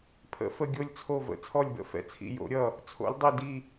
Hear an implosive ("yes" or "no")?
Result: no